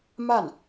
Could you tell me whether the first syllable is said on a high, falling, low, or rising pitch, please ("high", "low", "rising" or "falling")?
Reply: falling